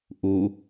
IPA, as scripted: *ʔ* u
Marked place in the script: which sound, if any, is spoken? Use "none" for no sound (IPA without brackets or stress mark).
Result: ʔ